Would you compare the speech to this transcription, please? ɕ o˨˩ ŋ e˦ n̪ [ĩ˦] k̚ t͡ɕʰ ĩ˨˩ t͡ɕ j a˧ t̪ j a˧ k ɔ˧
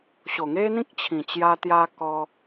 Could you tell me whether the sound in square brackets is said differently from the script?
no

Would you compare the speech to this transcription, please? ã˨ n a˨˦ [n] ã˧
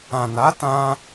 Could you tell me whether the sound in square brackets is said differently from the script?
yes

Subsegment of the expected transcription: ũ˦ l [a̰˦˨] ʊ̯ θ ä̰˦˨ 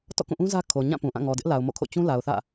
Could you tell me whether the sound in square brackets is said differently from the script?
yes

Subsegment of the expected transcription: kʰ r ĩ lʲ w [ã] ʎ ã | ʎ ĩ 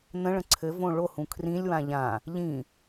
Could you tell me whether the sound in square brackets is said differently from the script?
no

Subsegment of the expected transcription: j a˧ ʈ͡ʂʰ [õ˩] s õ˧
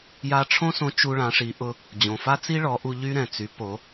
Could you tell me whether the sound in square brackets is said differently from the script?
yes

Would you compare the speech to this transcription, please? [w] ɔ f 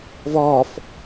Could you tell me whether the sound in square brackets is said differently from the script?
yes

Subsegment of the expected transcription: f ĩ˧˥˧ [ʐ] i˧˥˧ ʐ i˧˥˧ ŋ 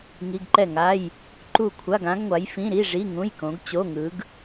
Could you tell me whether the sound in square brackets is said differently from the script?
yes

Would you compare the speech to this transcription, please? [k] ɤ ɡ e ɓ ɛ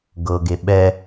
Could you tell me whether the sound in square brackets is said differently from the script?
yes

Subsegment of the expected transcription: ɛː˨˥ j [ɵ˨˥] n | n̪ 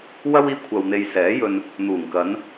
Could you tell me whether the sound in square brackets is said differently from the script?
yes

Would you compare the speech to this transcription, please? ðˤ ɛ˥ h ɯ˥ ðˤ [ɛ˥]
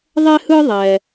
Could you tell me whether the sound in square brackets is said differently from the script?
yes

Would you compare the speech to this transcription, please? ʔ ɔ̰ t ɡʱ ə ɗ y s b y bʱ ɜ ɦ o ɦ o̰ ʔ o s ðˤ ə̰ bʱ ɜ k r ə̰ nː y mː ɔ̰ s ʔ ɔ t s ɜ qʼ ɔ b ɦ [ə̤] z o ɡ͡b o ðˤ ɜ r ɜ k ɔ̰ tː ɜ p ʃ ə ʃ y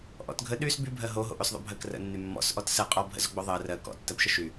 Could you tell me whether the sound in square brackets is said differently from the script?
yes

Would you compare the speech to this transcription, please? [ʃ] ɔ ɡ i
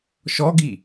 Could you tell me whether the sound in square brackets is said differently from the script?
no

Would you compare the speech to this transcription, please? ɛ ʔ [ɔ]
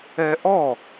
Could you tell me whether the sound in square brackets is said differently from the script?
no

